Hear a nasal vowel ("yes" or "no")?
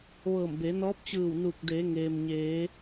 no